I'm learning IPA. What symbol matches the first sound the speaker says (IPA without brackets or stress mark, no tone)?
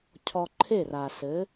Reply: cʰ